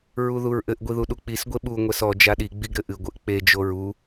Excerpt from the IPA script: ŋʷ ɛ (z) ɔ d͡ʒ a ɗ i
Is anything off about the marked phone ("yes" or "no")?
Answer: yes